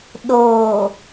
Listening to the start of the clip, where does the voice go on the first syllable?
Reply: low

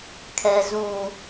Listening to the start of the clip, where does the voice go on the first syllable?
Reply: low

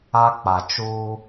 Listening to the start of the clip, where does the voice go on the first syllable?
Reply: high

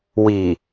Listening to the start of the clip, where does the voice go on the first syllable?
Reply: low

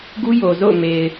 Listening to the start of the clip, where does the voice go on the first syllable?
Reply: high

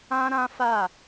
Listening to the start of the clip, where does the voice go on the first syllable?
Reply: high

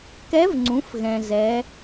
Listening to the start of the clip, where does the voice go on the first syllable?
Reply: rising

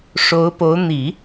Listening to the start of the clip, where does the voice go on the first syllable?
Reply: rising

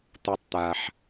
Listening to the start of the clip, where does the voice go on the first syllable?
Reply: low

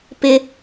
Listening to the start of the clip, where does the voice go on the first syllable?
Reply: high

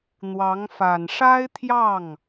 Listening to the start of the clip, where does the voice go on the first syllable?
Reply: rising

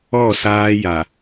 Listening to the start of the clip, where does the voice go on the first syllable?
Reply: falling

